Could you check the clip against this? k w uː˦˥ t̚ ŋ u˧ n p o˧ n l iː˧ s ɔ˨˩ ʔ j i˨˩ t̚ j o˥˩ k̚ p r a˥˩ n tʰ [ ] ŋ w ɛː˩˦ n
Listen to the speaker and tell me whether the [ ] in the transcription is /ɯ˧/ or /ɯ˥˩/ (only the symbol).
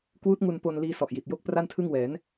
ɯ˥˩